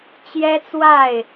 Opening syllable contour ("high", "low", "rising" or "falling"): high